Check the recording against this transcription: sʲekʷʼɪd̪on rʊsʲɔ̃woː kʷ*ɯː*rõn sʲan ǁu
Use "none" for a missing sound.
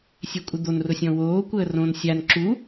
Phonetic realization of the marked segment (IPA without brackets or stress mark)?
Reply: əː